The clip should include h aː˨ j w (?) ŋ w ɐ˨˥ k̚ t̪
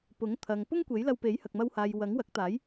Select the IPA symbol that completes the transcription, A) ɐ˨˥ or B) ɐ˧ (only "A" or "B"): A